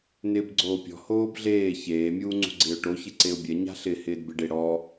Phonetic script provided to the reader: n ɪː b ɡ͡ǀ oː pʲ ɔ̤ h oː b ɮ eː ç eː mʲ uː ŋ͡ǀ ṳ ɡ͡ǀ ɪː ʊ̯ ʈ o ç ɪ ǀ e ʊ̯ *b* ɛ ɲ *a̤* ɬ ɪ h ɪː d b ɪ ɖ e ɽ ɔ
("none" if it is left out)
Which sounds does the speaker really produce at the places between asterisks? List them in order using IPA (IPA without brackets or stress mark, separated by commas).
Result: bʲ, a̤